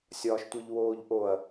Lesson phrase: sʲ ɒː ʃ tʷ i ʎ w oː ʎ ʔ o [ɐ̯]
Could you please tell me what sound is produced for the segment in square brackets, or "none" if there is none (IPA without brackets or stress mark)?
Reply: ɐ̯